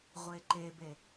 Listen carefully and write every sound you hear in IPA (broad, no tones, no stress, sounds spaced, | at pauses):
ʁʷ e ǃ e b e